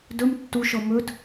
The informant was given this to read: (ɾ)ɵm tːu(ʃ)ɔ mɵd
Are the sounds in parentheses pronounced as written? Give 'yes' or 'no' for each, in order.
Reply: no, yes

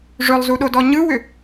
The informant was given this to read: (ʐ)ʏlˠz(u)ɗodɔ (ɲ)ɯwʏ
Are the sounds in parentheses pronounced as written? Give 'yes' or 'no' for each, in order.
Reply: yes, yes, yes

